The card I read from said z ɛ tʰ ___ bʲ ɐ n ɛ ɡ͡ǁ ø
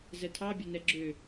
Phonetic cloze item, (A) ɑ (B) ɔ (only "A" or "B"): A